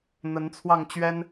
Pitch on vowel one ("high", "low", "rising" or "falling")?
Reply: rising